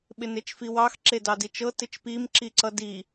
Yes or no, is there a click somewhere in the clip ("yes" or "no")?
yes